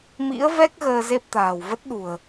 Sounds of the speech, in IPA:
m ḭ˧˥ ə̯ v ɛ˦˥ k̚ ɣ əː˧ z e˦˥ p̚ t̪ a̤ː˨˩ w v ə˦˥ t̚ ɗ ṳ˨˩ ə̯

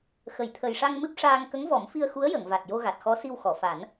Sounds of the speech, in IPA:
x ə˨˩˨ j t̪ʰ ə˨˩ j ʂ a˧ ŋ m ɨ˦˥ p̚ ʂ aː˧ ŋ k ə˧˥ ŋ v ɔ˨˩˦ m f i˧ ə̯ x u˧˥ ə̯ j ə˨˩˨ ŋ v a˨˩ t̚ j o˧ ɣ a˨˩ t̚ x ɔ˧˥ s i˧ w x ɔ˨˩˨ f a˨˩˦ n

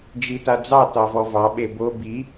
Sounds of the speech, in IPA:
d͡ʒ i t a d͡z ɑ t ɑ v ɔ v ɑ ɓ e b o b i

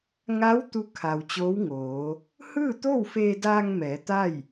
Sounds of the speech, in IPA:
ŋ a˧˥ w t̪ u˧˥ kʰ a˩ w t͡ɕ oː˧˥ w ŋ oː˩˧ | h ɯː˥˨ t̪ o˥˨ w f eː˧ d aː˧ ŋ m ɛː˩˧ t̪ a˥˨ j

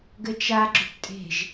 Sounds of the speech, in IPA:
ɡ ɘ t͡ʃ a ɡ͡ǁ ʏ p tʼ e̤ ʒ

